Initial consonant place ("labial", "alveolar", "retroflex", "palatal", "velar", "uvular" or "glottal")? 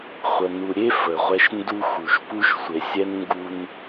uvular